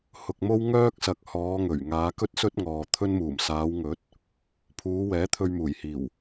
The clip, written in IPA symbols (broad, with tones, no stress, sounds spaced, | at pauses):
h ʊ˨ k̚ m o˥ w ŋ œː˥ k̚ s ɐ˨ k̚ h ɔː˨˧ ŋ ɵ˨˩ ɥ ŋ aː˨˧ k ɵ˥ t̚ s ɵ˥ t̚ ŋ ɔː˨ t̪ʰ ɵ˥ n m uː˨˩ m s aː˨˧ w ŋ ɵ˨˥ t̚ | pʰ uː˨˧ w ɛː˨˥ t̪ʰ ɵ˧ ɥ m uː˨˩ j h iː˨˩ w